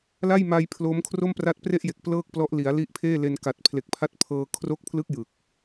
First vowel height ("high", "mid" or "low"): low